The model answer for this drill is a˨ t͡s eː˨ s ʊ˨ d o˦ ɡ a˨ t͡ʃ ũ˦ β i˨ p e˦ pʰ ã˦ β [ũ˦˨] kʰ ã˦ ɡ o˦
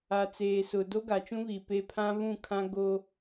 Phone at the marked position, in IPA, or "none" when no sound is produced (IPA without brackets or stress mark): ũ˦˨